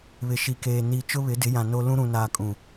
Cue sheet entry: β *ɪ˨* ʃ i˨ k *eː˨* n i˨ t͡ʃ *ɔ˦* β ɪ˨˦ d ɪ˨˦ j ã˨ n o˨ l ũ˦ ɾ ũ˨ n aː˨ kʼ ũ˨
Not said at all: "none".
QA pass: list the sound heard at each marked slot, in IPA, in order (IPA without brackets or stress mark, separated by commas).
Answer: ɪ˨, eː˨, ʊ˦